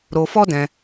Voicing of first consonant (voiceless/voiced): voiced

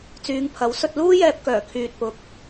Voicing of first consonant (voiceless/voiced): voiceless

